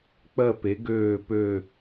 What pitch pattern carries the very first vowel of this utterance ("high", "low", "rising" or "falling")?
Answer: falling